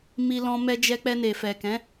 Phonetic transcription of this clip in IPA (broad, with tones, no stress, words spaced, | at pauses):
mi˧lɔ̃˧ mɛ˧d͡ʒɛ˧k͡pɛ˧ ne˨fɛ˨kɛ̃˨˦